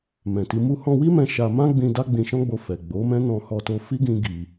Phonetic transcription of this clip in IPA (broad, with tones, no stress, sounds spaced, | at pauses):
m ɛ̃˨ t i˧ m u˧ h ɔ̃˧ w i˦ m ɛ̃˧ ʃ a˧ m ã˦ ɡ͡b ĩ˧ d a˦ ɡ͡b ĩ˧ ʃ ɔ̃˦ ɡ͡b o˧ f ɛ˨ ɡ͡b o˨˦ m ɛ̃˦ n ɔ̃˧ h ɔ˧ t o˧ f i˦ ɡ ĩ˦ ɡ i˧